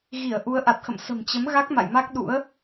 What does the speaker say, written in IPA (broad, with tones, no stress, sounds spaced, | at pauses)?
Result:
ɣ i˧˩ ə̯ ʔ u˨˦ ə̯ ʔ a˨˩ t̚ x ə̰˧˨ m s ə̤˨˩ m t͡ɕ ə˨˦ m ɣ a˦˥ k̚ m a̰˧˨ j m a˦˥ k̚ ɗ ṵ˧˥ ə̯